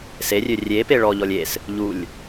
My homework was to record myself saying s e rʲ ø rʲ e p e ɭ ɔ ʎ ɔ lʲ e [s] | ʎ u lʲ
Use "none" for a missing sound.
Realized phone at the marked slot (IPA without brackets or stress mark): s